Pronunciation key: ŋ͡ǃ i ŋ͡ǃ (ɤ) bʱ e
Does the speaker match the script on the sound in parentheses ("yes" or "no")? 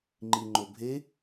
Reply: no